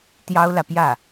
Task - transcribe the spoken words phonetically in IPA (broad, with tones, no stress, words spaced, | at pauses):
t̪jɑ˥ʊ̯lä˨pjä˥˩